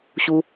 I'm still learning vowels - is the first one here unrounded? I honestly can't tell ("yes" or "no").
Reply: no